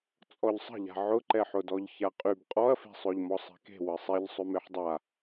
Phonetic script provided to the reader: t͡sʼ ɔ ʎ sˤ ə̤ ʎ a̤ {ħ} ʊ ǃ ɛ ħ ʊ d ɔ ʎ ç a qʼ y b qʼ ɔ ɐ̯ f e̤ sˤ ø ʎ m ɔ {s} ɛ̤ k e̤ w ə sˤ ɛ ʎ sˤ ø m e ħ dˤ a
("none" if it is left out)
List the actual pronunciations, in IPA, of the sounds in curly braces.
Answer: ʕ, sˤ

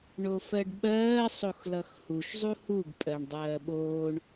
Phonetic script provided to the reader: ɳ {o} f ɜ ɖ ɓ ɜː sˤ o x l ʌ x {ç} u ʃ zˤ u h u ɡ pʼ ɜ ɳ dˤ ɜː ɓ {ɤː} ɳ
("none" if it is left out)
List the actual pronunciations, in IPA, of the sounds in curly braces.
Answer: o, h, oː

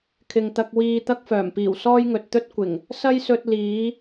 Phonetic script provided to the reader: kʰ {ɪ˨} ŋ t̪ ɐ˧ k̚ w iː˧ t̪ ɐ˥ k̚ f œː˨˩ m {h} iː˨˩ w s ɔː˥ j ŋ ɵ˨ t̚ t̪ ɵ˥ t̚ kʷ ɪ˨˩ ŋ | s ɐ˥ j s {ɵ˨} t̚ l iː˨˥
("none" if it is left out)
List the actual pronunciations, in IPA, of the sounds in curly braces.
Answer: ɪ˨, p, ɵ˧

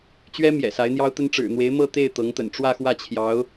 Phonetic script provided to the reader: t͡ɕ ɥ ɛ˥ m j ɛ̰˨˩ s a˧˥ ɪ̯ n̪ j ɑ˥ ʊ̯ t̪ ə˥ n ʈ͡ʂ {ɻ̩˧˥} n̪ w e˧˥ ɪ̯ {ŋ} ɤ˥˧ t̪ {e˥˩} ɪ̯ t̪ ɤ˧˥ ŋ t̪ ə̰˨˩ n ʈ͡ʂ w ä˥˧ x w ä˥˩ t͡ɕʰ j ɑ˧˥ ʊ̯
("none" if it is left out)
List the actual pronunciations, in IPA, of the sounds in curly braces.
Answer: ɻ̩˨˩, m, e˥˩

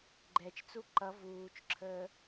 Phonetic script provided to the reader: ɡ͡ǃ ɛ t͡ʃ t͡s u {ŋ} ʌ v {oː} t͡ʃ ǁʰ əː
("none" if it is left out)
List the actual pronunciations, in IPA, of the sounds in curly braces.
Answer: ǃ, uː

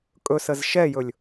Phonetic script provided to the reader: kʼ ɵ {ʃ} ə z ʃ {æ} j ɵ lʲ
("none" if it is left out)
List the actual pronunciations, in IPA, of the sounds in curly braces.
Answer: s, ɛ

